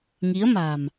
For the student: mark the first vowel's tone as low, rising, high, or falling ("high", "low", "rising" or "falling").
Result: rising